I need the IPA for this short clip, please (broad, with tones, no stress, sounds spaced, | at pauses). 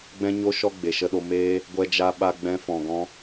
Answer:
ɡ͡b ɛ̃˦ ɲ o˧ ʃ ɔ˧ ɡ͡b e˨ ʃ ə˧ ɗ o˧ m eː˧ | ɡʷ ɛ˧ d͡ʒ a˧ ɓ a˧ ɡ͡b ɛ̃˧ f ɔ̃˨ ɡ ɔ̃˧